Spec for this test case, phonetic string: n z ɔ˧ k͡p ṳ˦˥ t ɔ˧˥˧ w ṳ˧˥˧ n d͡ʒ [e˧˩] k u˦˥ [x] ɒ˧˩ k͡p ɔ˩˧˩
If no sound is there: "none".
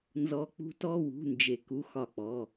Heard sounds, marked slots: e˧˩, x

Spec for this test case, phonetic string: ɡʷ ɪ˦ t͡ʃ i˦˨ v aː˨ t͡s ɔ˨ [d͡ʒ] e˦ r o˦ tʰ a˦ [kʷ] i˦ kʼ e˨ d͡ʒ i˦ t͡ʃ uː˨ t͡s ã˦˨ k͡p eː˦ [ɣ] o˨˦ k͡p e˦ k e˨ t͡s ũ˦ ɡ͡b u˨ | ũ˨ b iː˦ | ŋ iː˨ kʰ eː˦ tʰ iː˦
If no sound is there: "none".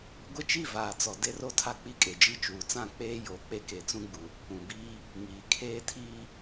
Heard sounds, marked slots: d, k͡p, j

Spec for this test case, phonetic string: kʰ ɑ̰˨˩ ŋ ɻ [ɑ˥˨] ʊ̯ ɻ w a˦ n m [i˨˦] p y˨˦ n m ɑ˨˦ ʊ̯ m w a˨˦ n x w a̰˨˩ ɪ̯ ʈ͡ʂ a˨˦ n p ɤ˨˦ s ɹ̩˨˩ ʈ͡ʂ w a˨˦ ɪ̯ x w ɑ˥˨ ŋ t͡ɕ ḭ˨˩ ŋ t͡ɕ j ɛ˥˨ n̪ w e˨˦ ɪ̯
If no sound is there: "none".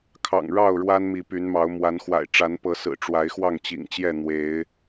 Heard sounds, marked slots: ɑ˥˨, i˨˦

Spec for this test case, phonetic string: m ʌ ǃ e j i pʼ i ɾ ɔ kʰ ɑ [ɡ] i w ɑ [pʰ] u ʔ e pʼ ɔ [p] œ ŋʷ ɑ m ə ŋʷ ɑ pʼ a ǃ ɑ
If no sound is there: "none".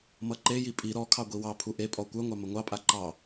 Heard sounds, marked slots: ɡʷ, pʰ, kʷ

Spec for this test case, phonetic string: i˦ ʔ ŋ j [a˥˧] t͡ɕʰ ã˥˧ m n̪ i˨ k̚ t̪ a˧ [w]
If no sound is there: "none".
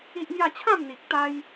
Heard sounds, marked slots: a˥˧, j

